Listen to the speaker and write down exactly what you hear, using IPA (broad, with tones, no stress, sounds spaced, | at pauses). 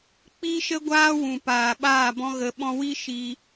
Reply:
k͡p i˦ ʃ ə˦ ɡʷ aː˦ w ũ˨ p aː˨ ɓ aː˦˨ b ɔ̃˧ ɣ ə˨ ɓ ɔ̃˧ w i˦ ʃ i˧